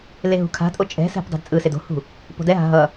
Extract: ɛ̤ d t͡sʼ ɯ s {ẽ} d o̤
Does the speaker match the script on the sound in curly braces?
no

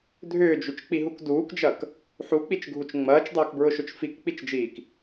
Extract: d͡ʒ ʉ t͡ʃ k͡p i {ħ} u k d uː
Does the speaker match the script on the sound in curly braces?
no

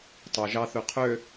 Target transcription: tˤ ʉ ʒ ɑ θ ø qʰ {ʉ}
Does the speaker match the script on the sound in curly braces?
no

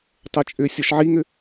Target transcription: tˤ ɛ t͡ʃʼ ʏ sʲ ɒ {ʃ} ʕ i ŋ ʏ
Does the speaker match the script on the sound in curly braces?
yes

